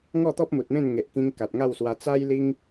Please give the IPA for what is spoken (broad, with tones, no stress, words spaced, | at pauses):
ŋɔ˥˧t̪ɔ˦p̚ mu˨t̚mẽ˥˧n ŋe˨ʔkĩ˧ŋ ka˨t̚ŋa˥˧wswa˧ t͡sa˦jli˦ŋ